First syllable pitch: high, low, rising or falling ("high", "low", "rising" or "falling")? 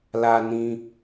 high